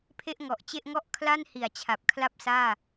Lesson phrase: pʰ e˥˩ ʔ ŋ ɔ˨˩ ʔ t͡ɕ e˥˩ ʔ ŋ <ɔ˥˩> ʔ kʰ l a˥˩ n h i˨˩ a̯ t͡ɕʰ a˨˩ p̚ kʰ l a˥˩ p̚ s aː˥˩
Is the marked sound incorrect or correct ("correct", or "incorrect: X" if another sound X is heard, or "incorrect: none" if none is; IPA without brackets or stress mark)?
correct